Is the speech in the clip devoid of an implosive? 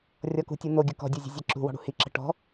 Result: yes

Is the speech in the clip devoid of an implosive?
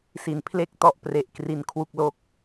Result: yes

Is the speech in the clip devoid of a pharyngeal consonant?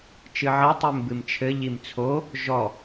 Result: no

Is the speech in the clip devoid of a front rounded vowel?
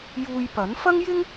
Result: yes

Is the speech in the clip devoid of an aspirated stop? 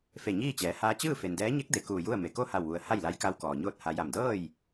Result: yes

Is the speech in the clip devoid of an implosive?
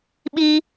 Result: no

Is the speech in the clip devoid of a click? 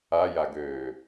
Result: yes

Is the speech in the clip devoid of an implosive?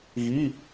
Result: yes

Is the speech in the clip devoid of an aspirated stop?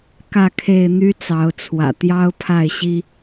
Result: no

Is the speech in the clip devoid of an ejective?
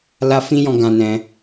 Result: yes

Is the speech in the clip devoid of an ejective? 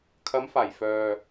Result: yes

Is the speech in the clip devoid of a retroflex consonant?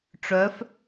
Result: no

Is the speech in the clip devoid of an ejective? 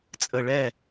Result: no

